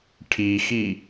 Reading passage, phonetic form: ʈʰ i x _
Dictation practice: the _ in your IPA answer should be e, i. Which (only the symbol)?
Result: i